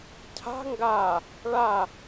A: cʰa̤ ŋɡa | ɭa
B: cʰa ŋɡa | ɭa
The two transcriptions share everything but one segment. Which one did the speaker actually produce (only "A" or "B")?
A